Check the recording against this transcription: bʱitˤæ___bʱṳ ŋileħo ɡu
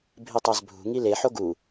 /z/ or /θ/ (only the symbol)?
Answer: z